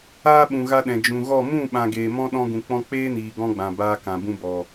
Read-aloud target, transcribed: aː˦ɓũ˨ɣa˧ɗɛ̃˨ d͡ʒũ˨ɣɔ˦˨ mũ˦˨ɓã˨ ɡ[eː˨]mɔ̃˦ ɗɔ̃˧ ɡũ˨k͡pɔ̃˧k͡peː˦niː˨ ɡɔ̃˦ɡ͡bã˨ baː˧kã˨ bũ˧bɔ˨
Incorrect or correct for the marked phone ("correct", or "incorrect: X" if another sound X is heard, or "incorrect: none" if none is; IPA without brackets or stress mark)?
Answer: correct